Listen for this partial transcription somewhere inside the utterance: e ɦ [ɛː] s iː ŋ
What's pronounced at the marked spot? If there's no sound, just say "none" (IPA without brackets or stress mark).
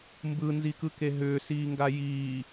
ʏː